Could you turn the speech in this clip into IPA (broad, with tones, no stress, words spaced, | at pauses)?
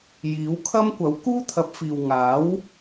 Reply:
jiː˨˥wkʰɐ˥m kʷɐ˨˥wkuː˥t̪ʰɐ˨˥p̚fiː˨w ŋaː˨˥w